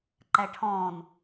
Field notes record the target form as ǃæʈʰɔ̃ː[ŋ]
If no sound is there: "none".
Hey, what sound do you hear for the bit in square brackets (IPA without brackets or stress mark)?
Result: n